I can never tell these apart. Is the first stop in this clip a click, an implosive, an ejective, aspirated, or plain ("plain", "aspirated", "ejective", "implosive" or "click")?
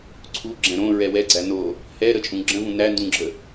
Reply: click